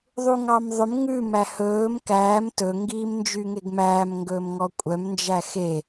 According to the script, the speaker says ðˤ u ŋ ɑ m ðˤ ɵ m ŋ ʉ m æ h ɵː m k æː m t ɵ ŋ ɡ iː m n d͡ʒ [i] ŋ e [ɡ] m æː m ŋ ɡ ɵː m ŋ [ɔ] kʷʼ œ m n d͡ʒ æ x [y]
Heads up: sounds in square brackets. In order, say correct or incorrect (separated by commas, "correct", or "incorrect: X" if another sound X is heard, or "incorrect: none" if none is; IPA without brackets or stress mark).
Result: incorrect: y, correct, correct, incorrect: e